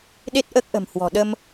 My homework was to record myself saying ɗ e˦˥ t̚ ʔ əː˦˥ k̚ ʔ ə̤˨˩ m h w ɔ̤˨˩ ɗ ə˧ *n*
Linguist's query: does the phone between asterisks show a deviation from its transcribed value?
yes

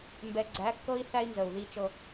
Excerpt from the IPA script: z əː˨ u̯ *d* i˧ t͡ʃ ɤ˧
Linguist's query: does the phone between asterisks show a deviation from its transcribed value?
yes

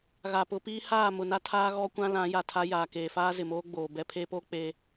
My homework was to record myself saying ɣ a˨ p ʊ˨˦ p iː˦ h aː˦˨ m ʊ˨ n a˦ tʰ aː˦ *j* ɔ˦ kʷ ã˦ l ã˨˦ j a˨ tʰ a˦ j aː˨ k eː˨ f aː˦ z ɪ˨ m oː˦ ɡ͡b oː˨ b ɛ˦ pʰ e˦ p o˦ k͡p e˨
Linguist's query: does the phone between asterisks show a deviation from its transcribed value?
yes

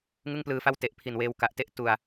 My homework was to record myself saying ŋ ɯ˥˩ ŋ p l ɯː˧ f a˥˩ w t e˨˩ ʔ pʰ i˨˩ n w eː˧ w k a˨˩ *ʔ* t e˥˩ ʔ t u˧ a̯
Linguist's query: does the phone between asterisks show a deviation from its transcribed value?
no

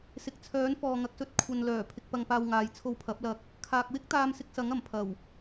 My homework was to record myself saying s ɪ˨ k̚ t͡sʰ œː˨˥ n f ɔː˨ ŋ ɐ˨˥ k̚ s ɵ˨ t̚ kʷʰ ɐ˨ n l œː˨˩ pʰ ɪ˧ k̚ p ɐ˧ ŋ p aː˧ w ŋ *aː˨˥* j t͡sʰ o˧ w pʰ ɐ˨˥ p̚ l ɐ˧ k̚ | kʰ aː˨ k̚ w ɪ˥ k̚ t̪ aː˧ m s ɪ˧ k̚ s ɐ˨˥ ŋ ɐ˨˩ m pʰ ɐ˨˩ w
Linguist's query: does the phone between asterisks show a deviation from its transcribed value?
yes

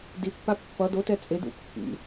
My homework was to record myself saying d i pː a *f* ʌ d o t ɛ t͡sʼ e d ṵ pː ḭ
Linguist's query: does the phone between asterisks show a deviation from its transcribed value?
yes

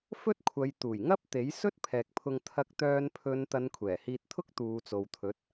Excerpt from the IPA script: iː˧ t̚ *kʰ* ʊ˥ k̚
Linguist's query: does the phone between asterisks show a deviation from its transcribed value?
yes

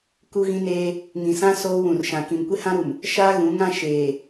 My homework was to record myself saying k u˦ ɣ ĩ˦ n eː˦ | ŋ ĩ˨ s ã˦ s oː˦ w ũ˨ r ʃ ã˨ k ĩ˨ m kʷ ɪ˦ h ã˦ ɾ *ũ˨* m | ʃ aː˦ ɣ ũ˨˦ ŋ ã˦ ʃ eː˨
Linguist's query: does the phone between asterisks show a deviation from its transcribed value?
yes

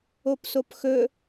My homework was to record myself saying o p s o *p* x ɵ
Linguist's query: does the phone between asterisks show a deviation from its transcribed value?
no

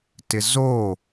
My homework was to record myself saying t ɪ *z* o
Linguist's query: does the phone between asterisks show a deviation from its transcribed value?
no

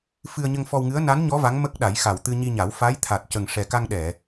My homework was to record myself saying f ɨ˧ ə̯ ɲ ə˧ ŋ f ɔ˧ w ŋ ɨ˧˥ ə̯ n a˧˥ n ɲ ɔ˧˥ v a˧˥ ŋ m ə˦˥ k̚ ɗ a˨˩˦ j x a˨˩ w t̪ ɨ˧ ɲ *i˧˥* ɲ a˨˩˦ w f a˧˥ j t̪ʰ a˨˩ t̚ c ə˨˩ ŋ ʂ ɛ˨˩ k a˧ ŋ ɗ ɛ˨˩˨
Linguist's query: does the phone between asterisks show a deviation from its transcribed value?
yes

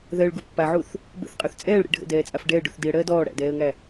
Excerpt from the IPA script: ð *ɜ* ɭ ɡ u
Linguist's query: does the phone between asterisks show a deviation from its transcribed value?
no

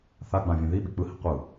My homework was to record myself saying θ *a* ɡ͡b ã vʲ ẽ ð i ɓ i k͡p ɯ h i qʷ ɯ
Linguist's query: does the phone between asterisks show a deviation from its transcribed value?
no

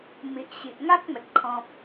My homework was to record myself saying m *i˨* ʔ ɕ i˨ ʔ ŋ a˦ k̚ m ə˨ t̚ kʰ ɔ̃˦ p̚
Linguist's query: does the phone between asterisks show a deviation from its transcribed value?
no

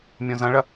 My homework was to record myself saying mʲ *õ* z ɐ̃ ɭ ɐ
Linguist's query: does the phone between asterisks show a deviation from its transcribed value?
no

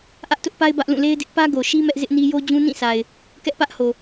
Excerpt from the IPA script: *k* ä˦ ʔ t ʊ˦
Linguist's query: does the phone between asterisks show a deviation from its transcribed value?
yes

